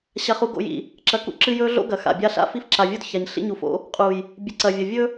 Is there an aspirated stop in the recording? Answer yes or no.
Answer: no